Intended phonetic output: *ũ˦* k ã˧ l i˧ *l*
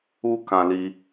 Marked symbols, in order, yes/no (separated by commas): no, no